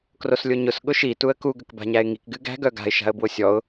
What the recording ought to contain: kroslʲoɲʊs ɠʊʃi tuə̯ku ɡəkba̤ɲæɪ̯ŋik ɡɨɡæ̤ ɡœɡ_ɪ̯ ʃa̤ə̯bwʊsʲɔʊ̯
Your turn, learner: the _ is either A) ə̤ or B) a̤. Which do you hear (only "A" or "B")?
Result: B